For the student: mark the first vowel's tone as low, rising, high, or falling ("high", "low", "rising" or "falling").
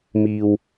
low